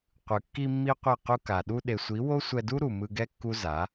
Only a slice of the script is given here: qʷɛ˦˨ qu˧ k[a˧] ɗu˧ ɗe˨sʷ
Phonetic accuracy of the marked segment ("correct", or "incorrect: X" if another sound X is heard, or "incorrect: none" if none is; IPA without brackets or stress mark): incorrect: a˨